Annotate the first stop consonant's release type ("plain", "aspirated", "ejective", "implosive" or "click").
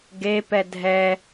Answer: plain